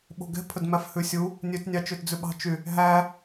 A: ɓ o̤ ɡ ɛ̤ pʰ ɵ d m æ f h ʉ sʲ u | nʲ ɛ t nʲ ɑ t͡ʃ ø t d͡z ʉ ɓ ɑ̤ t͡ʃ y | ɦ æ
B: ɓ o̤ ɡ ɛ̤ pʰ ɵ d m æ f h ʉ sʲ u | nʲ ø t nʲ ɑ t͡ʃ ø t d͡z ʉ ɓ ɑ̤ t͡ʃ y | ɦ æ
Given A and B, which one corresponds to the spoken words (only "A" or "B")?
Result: B